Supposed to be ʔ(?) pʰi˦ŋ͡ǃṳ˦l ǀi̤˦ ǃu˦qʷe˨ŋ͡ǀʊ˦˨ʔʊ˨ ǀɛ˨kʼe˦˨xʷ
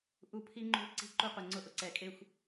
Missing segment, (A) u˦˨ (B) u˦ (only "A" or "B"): A